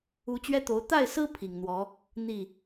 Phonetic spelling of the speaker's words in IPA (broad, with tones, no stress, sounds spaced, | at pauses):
u˥ t͡ɕ ɥ ɛ˥ t̪ o˧˥ ʊ̯ t̪ a˥˩ ɪ̯ s ɹ̩˥ pʰ i˨˩ ŋ n̪ w ɔ˧˥ | n̪ i˥˩